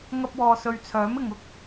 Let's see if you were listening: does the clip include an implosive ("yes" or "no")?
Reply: no